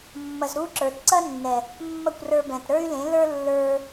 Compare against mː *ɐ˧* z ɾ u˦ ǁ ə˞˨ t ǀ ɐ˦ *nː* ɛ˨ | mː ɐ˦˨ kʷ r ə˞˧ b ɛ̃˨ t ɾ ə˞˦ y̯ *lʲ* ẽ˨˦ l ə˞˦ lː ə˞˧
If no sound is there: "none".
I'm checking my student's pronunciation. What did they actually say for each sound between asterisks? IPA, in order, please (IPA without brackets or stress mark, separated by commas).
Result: ɐ˧, nː, l